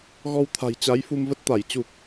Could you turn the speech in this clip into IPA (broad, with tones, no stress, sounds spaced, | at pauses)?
ɣ ɔ˧ w t̪ʰ a̤˨˩ j t͡ɕ a˨˦ j f u˧ m v ə˦˥ t̚ t̪ a˧˩ j t͡ɕ u˨˩ k̚